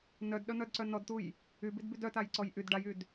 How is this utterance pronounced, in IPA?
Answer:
nœdɗœn̪œdǀœ nɔdt̪uj | ybidbyd œtajǀɔj ʔyd ɖajyd

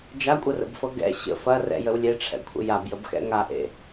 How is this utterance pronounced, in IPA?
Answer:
d͡ʒakʷʼərə̰bfɤ ɡɛ̰ ɕə̰ fɐrɛ̰jəw lʲeʈ͡ʂʰɛ̰kʷʰə̰ jabjəbxɛ̰ ŋaʔḛ

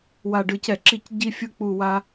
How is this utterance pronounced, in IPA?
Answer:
wa˨˩ɖɯ˨˩cɛ˧˩˧ǁi˧˩˧c ɟi˦fʲɯ˦ k͡pu˦˨wa˦

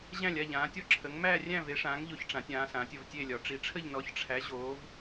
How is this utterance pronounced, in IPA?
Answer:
ʑæ̃˥˧lʲa˥˧ʎãː˨˦tʲɔ˥˧ ǁʰə˨˦ŋmæ˥˧ rʲæ̃˥˧ve˨˦ʂãː˨˦ŋʎo˨˦ç ʈ͡ʂã˨˦tʲãː˨˦sãː˨˦tʲ ə˥˧vtʲe˥˧lʲɒ˨˦ ʈ͡ʂi˨˦ʈ͡ʂʰə˥˧ʎ nɔ˨˦çʈ͡ʂʰæ˨˦ ʑoː˨˦v

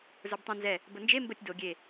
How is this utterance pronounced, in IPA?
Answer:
zə˞btˤĩ nzɛ | bənd͡ʒe mbətʲ do ɡʲe

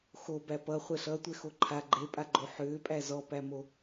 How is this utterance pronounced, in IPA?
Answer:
xo bæpʌ χʷɛɬʌtʷɛ xoǃʰa ɡ͡ǃepʼaɡ͡ǃo ħʏːpʼæ zɔpæmo

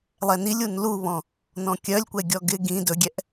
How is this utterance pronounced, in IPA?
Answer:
lˠɛnilʲ unluβɔ̃ | nɔ̃kʲœlʲkʷɛ ɡʲɔɡɪ ɡĩ dɵɡʲɛʔ

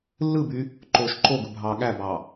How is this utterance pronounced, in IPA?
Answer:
lːɯby | ǃoːʃǃoɡɯ bʱɑːɠæbɑ

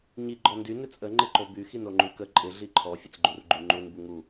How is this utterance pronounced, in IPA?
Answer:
ɲi ɡ͡ǃɔndy nɪt͡sʼə ŋ͡ǃɪǃoby xinoŋ͡ǃykə ǃʼɪ ɮiǃʰɔ fʲət͡sɡ͡ǃurɡ͡ǃyŋ͡ǃun buŋu

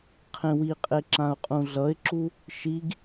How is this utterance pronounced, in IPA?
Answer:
qʰẽwiqʼe ǁãʊ̯qʼũɮʌɪ̯ǁu | ʃiɡ

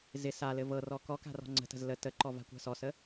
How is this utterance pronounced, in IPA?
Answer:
zɪ salɘ vɤrɔ kɔka̤ rɔ̤ŋ͡ǀə̤tə̤z lə təǃɔ va̤kʷa̤sɔsə

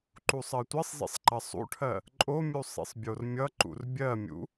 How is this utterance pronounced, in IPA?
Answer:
ǃusˤɜtʷisˤzḭsˤ ǃɐsˤṵʈʰɜ | ǃʼomʲu sˤḭsˤbʲormʲʌǃṵr bʲɜmʲṵ

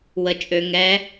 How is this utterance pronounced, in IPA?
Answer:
wə t͡ʃʼø ŋɛ

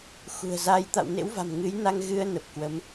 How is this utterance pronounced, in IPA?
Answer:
xṳ˨˩ə̯za˧j t̪a̰˧˨wnḛ˧˥wva̤˨˩m ŋɨ˨˦jna˧ŋ ɣɨ˧ə̯ nə˨˩p̚kwə˨˦m

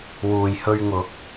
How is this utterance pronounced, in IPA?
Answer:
wuː˨jhɵ˧ɥŋʊ˨˥k̚

